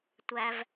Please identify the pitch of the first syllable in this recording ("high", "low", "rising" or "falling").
low